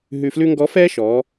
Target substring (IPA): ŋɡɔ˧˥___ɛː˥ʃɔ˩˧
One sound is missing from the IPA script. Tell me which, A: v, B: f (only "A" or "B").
B